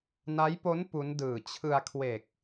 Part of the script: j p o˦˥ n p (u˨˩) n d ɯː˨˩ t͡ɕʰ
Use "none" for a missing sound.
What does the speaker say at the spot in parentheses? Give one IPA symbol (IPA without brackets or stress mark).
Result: u˦˥